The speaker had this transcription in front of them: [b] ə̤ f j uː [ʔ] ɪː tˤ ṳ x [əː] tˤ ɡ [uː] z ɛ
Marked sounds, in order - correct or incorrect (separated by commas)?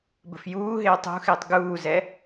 correct, incorrect, incorrect, correct